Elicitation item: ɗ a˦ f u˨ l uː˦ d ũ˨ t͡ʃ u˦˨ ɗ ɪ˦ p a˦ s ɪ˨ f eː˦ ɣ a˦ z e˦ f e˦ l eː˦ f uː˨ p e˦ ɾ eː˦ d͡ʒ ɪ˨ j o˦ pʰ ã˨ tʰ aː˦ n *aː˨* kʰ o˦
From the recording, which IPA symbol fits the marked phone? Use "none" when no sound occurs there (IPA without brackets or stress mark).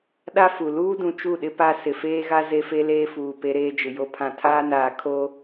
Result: aː˨